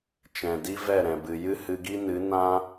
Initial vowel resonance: nasal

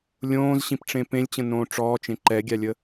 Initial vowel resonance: nasal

